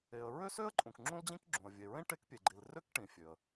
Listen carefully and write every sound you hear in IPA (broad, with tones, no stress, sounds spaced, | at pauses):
e˩ ə̯ ɹ ø˥ s ø˥ ə̯ ǃʼ ũ˩ k ŋ͡ǁ ũ˥ l d͡ʑ ĩ˥ k ɡ͡ǁ ũ˩ ə̯ vʲ e˩ ɹ ẽ˥ ʈ e˥ k pʲ e˩ ɡ͡ǃ i˩ l r ø˥ k ʈ ĩ˩ fʲ ø˩ ə̯